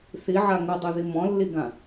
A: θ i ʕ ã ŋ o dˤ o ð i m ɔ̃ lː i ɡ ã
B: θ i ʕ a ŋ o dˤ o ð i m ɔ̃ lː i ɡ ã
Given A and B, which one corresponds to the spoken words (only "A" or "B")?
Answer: B